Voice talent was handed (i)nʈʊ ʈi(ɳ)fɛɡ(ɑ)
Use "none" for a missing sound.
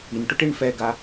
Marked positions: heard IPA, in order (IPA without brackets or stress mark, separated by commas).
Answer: i, ɳ, a